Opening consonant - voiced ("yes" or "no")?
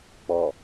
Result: no